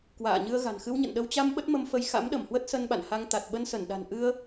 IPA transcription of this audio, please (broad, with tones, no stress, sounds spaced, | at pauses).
k w a̰ː˧˨ ɲ ɨ˧ ə̯ ɣ a̤˨˩ n x ɨ˧ w ɲ ə̰˧˨ n ɗ ə˧ w t͡ɕ a˧ m ɓ ə˦˥ t̚ m ə˧ m f ə˧ j x a̰˧˥ m ɗ ə˧˩ m h w ə˦˥ t̚ s ə˧ n ɓ a̰˧˨ n h a˧ ŋ t̪ a˨˩ t̚ ɓ ə˧ n s ə˧˩ n ɗ a̤˨˩ n ʔ ɨ˧ ə̯